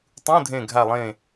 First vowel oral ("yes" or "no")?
no